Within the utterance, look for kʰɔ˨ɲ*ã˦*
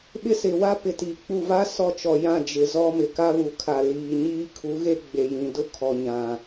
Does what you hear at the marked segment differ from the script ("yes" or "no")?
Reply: yes